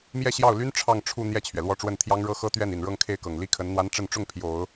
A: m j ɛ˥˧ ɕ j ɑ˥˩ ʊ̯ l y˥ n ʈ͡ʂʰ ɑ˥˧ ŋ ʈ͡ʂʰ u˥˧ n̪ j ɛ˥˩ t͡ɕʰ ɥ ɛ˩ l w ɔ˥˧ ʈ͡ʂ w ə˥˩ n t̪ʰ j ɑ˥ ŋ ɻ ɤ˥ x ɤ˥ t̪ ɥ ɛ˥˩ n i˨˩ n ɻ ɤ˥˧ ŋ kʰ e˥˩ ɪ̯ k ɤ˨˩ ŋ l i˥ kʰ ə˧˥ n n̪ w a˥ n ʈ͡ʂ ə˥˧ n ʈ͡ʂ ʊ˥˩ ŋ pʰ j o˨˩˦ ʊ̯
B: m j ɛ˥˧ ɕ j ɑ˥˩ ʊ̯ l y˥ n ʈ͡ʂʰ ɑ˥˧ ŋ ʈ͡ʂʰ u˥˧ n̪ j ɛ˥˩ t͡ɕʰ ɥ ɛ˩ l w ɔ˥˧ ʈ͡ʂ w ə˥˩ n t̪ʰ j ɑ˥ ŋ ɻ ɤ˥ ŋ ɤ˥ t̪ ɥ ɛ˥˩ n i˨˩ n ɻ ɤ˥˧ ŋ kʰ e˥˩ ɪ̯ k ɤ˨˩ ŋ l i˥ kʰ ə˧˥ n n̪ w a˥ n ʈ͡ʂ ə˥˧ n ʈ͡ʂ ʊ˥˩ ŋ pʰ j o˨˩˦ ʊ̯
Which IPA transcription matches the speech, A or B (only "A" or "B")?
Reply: A